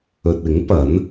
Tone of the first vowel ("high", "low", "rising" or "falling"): low